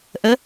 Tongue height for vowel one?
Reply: mid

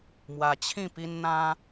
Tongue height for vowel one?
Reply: low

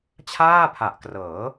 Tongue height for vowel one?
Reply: low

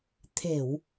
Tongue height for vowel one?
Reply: mid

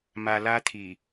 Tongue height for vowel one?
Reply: low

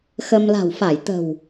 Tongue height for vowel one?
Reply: mid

